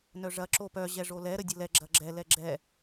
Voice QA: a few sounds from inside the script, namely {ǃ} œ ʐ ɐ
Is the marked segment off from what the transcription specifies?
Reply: yes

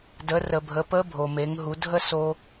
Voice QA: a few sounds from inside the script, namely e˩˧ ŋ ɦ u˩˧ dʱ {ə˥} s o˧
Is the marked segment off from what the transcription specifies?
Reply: no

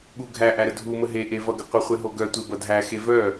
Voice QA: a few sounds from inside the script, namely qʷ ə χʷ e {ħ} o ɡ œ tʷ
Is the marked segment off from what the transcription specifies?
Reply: yes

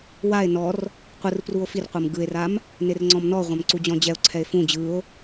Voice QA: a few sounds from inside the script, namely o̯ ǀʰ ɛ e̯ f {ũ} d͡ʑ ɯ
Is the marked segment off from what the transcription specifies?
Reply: no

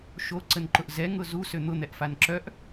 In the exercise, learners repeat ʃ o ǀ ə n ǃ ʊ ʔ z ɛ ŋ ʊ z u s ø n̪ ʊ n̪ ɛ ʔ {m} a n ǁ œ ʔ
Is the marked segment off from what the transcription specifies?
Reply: yes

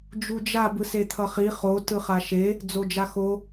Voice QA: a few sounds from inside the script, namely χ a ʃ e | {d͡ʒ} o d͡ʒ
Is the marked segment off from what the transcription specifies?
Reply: yes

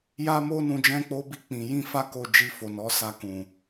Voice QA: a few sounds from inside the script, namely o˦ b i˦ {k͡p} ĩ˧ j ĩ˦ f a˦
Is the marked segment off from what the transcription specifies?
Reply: no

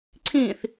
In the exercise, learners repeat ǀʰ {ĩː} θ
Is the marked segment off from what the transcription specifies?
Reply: no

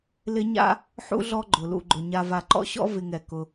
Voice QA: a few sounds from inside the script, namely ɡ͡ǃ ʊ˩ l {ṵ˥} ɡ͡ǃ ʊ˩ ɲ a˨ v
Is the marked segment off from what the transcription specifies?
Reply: yes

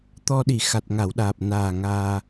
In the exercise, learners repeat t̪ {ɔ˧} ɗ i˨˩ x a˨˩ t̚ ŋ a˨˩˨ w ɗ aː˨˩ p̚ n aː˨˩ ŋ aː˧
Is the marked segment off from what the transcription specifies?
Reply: no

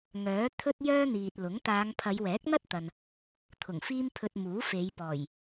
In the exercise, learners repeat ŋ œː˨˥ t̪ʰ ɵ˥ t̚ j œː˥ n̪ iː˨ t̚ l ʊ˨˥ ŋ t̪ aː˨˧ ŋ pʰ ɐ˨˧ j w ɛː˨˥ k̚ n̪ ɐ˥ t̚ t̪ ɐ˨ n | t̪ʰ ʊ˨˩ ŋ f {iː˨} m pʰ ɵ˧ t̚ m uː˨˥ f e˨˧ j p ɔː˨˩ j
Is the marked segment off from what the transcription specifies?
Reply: yes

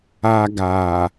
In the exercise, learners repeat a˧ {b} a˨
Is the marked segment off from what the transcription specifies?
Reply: yes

